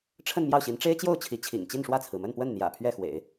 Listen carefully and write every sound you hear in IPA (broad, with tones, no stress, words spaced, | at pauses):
ʈ͡ʂʰə˥˧n mjɑ˥˩ʊ̯ɕi˧˥n ʈ͡ʂe˥ɪ̯t͡ɕjo˥˩ʊ̯ t͡ɕʰi˧˥t͡ɕʰḭ˨˩ŋ t͡ɕi˥˧nʂwä˥˩t͡sʰɹ̩˩ mə˥˧npwə˥˩nn̪jä̰˨˩ pʰɥɛ˥˩xwḛ˨˩˦ɪ̯